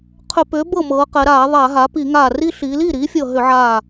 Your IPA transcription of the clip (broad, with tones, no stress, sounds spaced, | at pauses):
qʰ ʏ˧˩˧ p ʏː˩˥ b ɤ˥˩ m ɤː˩˧ q ɛ˩˧ ɾ aː˧˩˧ ðˤ a˧˩˧ ɦ a˩˥ p i˧˩˧ ŋ aː˧˩ r i˦ ɬ iː˩˧ l iː˥˩ ɾ iː˩˥ fʲ ɤ˧˩ ɦ ʏ˧˩˧ ʕ aː˧˩